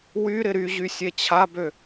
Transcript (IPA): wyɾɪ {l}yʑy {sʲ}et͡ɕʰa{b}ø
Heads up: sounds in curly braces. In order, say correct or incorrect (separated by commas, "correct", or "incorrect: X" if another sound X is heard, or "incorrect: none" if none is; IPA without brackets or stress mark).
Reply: incorrect: ɾ, correct, correct